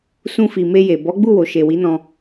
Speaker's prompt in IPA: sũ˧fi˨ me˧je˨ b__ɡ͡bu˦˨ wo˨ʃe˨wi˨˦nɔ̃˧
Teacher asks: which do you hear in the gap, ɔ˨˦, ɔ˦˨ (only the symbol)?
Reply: ɔ˨˦